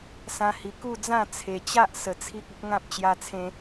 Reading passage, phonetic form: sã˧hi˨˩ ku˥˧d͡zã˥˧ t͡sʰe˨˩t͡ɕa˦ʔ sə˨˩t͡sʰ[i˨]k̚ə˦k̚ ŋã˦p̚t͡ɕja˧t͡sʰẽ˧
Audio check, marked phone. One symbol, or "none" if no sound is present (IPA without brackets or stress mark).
i˦